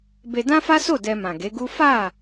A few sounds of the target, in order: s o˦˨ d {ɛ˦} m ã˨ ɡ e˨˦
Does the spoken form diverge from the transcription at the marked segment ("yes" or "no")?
yes